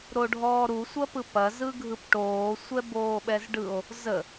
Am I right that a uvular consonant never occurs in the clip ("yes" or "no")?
yes